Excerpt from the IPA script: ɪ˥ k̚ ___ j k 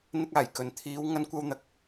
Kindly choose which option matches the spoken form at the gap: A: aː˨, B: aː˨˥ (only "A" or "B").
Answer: A